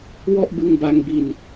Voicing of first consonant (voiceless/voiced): voiced